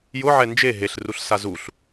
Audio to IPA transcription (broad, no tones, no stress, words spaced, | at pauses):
jʊʕɛ nd͡ʒe ɦeɬruɬsa zuɬ